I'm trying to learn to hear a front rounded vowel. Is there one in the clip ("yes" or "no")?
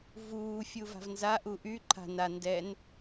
yes